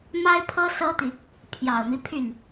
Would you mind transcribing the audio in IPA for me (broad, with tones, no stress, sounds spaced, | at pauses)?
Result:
m a˥ ɪ̯ pʰ ɤ˥ s ɤ˥ t̪ i˨ | pʰ j ɑ˨˩ ʊ̯ m i˦ pʰ y˥˩ n